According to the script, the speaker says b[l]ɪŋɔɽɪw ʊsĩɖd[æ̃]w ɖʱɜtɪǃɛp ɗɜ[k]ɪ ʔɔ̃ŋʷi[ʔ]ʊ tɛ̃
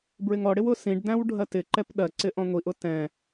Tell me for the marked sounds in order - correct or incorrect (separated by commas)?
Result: incorrect, correct, incorrect, correct